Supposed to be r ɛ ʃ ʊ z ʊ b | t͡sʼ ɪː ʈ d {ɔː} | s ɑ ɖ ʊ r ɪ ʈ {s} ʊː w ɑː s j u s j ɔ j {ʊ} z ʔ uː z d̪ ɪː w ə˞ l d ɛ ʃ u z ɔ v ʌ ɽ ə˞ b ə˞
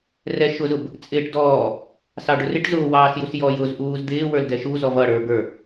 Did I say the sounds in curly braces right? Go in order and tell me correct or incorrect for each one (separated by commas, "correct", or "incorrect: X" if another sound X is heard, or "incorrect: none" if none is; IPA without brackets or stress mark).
correct, incorrect: z, correct